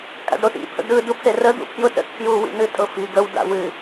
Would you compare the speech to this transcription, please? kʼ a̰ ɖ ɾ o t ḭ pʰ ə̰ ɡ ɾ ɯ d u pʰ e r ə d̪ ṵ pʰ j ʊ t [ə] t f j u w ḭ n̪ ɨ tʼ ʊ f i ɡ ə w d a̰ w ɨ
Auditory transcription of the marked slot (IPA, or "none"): ə̰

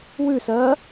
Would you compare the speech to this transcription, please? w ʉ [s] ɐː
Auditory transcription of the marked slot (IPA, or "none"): s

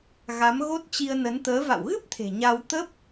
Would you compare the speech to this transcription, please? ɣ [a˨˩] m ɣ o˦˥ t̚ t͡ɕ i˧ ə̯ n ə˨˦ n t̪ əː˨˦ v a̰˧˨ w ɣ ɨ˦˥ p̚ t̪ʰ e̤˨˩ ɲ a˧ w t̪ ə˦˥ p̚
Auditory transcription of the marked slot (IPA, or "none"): a˨˦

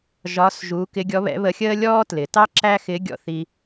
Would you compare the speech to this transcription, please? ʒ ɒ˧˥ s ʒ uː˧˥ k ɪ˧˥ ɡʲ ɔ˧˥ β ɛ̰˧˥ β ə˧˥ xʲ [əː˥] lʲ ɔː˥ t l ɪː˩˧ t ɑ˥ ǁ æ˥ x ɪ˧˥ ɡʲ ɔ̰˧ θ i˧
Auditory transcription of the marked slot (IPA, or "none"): əː˥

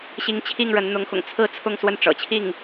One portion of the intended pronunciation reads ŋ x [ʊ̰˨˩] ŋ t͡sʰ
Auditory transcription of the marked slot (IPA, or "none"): ʊ̰˨˩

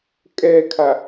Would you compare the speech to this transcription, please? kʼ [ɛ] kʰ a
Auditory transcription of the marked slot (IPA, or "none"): ɛ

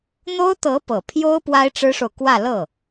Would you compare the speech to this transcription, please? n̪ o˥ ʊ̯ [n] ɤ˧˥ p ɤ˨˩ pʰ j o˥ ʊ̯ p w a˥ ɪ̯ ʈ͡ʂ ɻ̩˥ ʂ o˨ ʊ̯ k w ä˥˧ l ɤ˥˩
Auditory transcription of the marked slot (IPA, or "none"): t̪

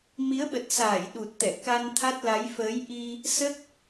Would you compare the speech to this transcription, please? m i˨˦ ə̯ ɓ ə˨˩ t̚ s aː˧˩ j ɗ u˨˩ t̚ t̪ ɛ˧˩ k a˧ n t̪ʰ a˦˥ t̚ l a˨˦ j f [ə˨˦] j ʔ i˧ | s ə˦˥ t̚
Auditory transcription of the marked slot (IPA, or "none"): əː˨˦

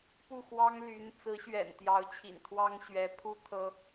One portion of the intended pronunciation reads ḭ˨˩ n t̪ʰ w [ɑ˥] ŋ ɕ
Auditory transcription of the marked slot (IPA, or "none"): ɑ˥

